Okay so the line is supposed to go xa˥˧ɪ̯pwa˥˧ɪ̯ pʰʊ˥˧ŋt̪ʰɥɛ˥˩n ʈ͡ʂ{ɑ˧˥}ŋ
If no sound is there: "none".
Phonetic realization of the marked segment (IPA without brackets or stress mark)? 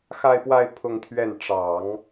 ɑ˨˩˦